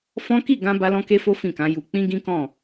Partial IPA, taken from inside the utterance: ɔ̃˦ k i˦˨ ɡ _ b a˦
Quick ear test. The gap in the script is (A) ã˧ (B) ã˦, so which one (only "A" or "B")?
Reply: A